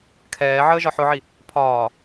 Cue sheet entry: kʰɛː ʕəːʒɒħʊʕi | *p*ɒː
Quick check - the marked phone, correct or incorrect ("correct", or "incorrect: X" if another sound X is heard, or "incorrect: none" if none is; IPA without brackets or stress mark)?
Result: incorrect: pʰ